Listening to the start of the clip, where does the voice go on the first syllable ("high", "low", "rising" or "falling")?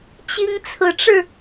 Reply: high